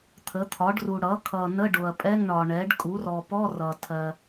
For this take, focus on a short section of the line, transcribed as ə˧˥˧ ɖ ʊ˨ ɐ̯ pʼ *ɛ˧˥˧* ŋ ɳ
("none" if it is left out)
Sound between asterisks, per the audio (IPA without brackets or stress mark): ɛ˧˥˧